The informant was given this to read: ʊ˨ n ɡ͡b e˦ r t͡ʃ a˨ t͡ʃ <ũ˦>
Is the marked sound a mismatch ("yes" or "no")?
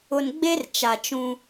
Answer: no